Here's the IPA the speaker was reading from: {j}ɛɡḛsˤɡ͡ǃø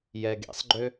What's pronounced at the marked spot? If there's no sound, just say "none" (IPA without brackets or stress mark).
j